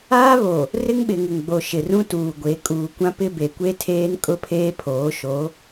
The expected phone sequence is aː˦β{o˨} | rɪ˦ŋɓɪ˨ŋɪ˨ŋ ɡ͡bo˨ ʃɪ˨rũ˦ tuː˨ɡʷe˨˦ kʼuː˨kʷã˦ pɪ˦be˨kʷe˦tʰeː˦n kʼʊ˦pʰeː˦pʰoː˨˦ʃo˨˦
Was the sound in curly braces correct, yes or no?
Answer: yes